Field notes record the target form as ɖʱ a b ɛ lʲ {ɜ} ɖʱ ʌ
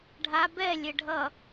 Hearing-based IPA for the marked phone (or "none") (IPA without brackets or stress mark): ɛ